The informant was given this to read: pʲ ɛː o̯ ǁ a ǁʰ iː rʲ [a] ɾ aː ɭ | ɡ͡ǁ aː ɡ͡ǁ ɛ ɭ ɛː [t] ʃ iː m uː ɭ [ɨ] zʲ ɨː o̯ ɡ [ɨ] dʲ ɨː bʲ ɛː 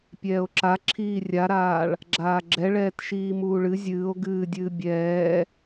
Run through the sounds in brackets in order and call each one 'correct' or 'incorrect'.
correct, correct, correct, incorrect

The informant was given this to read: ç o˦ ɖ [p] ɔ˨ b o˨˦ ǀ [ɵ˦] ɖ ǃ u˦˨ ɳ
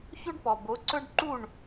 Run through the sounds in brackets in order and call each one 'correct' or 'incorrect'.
correct, correct

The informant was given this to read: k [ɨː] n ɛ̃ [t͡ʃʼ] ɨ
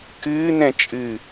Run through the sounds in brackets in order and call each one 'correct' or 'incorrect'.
correct, correct

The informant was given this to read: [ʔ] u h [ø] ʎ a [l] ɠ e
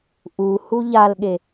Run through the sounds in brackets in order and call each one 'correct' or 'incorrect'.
correct, incorrect, correct

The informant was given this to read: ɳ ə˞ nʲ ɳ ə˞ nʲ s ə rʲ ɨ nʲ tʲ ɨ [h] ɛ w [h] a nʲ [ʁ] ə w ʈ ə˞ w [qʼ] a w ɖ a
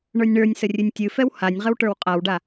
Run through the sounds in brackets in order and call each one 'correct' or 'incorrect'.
incorrect, correct, correct, correct

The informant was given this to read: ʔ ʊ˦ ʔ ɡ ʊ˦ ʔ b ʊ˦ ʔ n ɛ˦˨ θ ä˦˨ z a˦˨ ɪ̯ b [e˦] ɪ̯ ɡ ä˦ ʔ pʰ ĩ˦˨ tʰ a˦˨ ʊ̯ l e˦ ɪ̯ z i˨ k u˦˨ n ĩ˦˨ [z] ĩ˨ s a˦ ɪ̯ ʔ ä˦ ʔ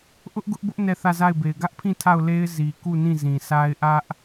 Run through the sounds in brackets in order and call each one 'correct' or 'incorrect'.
incorrect, correct

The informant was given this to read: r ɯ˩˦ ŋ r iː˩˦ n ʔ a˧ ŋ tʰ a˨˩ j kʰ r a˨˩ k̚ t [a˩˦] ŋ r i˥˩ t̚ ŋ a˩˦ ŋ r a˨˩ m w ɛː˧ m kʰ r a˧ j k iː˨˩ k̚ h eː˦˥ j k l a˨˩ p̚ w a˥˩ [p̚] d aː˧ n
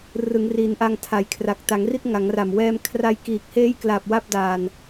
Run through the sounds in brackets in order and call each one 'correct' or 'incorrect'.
correct, correct

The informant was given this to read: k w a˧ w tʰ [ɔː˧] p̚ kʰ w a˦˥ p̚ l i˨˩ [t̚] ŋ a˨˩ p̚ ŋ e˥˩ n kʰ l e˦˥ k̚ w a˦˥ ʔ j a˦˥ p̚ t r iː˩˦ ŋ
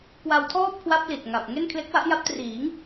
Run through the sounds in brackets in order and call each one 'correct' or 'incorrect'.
incorrect, correct

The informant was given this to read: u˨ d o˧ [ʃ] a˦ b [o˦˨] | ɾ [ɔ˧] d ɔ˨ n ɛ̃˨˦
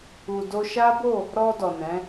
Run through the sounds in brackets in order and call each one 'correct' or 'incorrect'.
correct, correct, correct

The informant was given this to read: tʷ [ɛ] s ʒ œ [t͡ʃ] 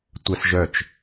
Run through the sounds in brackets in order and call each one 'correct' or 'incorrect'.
correct, correct

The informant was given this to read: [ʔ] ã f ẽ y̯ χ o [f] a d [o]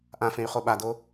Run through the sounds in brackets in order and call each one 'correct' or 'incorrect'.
correct, incorrect, correct

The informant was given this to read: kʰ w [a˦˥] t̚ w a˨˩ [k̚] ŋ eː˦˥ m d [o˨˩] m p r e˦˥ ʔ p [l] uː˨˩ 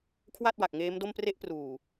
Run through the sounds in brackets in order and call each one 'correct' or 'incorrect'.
incorrect, correct, incorrect, incorrect

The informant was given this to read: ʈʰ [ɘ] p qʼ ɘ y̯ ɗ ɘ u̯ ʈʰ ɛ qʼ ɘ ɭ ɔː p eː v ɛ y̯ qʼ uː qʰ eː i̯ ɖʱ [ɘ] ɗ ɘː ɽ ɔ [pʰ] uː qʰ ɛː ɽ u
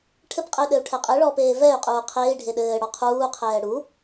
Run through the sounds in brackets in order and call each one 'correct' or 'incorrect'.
correct, incorrect, incorrect

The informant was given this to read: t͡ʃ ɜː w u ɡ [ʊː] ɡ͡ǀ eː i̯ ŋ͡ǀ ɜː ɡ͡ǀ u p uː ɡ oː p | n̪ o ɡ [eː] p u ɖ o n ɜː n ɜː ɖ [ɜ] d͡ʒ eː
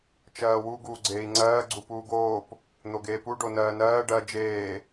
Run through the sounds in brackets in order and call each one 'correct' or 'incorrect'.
incorrect, correct, correct

